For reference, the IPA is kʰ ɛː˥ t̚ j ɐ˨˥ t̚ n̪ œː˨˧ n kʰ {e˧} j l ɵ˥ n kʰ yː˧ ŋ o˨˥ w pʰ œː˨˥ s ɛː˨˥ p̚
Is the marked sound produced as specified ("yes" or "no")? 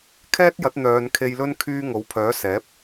yes